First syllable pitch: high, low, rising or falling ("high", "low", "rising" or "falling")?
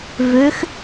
rising